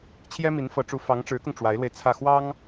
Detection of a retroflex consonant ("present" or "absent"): present